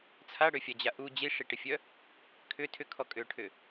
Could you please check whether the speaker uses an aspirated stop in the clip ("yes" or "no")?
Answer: yes